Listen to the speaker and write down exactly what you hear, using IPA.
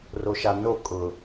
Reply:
roʃano kʼʊ

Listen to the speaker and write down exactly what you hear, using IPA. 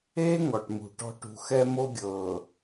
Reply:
eː˦ ŋɔ˨ʈmṳ˨ʈɔ̤˦ ʈṳ˨xɛ˦mo˦ɡʲɤː˨

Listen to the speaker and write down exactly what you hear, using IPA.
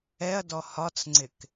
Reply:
ɛɐ̯dɔ hɒt͡sŋ͡ǀɪk

